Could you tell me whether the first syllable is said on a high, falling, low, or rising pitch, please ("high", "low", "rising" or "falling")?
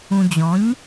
low